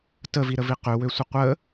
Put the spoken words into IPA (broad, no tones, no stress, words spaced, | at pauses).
təviɾəvi qøwøsʷə qʷə